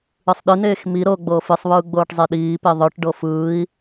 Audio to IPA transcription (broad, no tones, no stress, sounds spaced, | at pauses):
ɨ sˤ ɗ ɨ n eː x m i ɾ ɤ ɡ͡b ɤː f ɨ sˤ β ɯː ɡ͡b ɤː ʈ zˤ e ɗ iː p e ðˤ ɯ ʈ ɖ ɤ f ɯː i̯